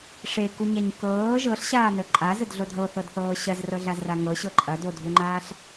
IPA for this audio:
ʂ e k u ɲ a ɲ k ɤː ʒ ɤ ɬ ɕ aː n ə ǃʼ a z ə d ɮ o dʱ ɤ θ ɤ d θ ɤː ɕ ɐ z r ɤ ɮ a z r a ŋ ɤ ɕ ɤ ǃʼ ɐ d o dʱ u ŋ͡ǃ aː ɬ

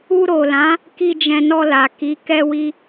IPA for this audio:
u˧ ɾ o˨ l ã˨˦ | k i˧ d͡ʒ ɛ̃˧ n ɔ˧ l a˨ k i˨˦ k ɛ˧ w i˧

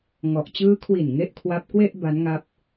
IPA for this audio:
ŋ ɔ˨˩ ʔ t͡ɕ ɯː˦˥ kʰ w i˨˩ n ŋ e˥˩ ʔ kʰ w a˦˥ p̚ k w e˥˩ ʔ b a˦˥ n ŋ a˦˥ p̚

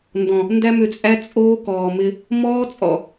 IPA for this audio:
n d ɔ̃˨ | n d æ˦ m ʏ˧ t͡sʼ æ˦ t͡sʼ oː˦ k ɔː˨ m ɪ˧ | m ɔː˦ t͡sʼ ɔ̰˨

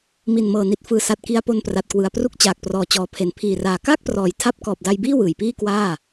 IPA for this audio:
m i˨˩ n m ɤː˨˩ n i˨˩ t̚ f ɯː˨˩ s a˨˩ t̚ k i˧ a̯ p o˧ n p r a˨˩ t̚ k w ɯ˨˩ a̯ p r u˦˥ k̚ t͡ɕ aː˨˩ k̚ p r ɔː˨˩ t͡ɕ ɔː˩˦ pʰ e˩˦ n pʰ iː˨˩ r aː˨˩ k aː˥˩ k̚ p r ɔː˩˦ j tʰ a˦˥ p̚ k ɔː˨˩ p̚ d a˧ j b iː˥˩ w ɯː˨˩ j p iː˥˩ k w aː˥˩

